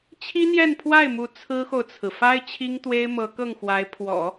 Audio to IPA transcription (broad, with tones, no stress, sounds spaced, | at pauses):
t͡ɕʰ i˥ n̪ j ɛ˥˧ n pʰ w a˥˩ ɪ̯ m u˧˥ t͡sʰ ɹ̩˥ x o˨ ʊ̯ t͡sʰ ɹ̩˩ f a˥ ɪ̯ t͡ɕʰ i˥ ŋ t̪ w e˥ ɪ̯ m ɤ˧˥ k ɤ˥˩ ŋ x w a˧˥ ɪ̯ pʰ w ɔ̰˨˩˦